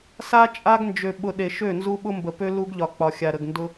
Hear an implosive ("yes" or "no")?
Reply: yes